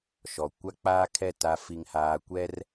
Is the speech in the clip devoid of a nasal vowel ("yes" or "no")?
yes